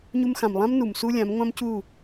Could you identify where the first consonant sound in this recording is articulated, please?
palatal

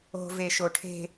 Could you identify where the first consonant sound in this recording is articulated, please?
labial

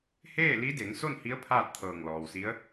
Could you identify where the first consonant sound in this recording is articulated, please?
glottal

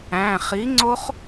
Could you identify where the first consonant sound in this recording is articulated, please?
uvular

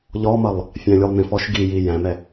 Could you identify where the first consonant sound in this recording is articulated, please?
palatal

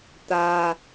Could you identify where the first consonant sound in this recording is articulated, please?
alveolar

